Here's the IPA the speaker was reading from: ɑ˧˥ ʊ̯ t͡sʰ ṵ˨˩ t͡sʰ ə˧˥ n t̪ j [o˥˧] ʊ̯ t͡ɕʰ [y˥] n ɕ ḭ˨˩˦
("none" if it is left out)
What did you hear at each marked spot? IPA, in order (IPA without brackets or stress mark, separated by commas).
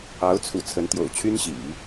o̰˨˩, y˥